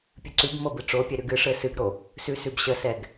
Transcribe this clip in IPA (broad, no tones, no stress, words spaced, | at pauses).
pʲɨǀʉbmɤ bɨʈ͡ʂopʲɛ ɾʉɡɨʂɘ sɨɡɾo | sʉsʉbɕəsɛɡ